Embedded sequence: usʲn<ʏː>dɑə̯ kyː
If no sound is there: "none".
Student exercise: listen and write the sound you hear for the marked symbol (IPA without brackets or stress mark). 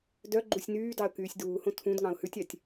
yː